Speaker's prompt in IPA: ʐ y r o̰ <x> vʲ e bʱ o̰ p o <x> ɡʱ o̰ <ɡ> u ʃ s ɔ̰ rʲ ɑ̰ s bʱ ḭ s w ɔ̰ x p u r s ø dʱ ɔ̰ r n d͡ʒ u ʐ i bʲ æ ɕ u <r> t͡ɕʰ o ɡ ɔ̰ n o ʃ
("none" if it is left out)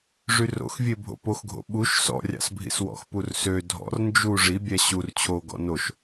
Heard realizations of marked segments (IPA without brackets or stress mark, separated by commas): x, x, ɓ, r